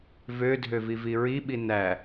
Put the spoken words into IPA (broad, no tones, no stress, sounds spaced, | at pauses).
v ø dʱ ø v i v i ɹ i ɓ i n æ